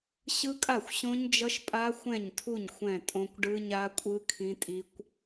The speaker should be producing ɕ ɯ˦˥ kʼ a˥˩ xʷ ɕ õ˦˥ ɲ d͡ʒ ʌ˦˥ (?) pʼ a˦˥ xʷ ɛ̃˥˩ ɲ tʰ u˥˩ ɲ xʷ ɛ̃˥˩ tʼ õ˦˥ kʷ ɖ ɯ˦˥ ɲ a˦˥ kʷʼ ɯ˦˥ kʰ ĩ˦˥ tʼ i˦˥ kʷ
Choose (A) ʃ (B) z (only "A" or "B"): A